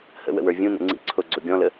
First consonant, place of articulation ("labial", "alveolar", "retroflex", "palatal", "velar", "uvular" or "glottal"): glottal